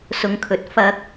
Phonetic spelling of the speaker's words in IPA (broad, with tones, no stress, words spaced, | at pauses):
sʊ˨˧ŋkʰɵ˨t̚ fɐ˧k̚